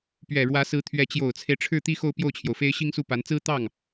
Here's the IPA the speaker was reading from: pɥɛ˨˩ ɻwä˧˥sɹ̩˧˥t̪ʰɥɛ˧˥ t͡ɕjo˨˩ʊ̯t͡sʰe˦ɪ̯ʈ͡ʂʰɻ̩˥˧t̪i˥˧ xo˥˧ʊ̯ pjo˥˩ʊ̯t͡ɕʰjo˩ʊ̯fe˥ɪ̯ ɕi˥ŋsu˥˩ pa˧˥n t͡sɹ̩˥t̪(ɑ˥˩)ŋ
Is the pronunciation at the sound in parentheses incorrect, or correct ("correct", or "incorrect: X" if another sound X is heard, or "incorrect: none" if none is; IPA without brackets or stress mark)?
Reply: correct